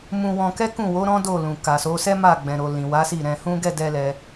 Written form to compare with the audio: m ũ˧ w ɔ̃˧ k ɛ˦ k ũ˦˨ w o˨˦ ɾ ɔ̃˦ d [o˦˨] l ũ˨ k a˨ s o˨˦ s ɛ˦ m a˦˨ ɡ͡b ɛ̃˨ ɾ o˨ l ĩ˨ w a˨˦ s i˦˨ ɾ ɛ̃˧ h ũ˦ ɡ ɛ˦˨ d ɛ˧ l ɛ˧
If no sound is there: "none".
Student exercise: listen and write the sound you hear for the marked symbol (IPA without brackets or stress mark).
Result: o˦˨